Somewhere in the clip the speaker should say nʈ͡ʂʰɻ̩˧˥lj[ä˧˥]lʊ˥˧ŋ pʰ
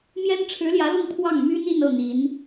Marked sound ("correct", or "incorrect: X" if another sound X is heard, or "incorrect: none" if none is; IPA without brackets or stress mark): correct